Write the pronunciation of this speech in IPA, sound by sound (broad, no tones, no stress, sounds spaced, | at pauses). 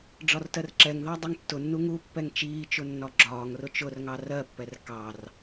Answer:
ɖ͡ʐ ɒ r t ɜ r ǁ ɛ ŋ ð ɑ dˤ ʌ ŋ tː ʊ nː u ŋ u pː ɛ ŋ t͡ʃ iː t͡ʃ ʊ nː ɒ ɡ͡ǁ ɒː ŋ r ʊ t͡ʃ ʊ r ŋ ɑ r ɜ pː ɛ r k ɑ r